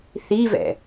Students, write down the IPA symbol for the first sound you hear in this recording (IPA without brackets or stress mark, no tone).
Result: θ